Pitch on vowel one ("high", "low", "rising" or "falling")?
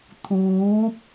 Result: rising